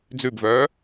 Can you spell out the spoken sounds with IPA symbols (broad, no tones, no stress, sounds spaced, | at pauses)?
d͡z ʉ b v œː